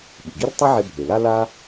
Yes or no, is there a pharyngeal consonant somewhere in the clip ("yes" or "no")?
yes